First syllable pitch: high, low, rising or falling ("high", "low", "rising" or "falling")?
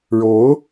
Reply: rising